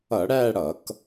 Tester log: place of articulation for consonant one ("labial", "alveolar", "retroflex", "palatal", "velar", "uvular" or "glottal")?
retroflex